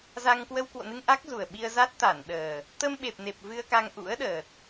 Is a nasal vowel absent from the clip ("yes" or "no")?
yes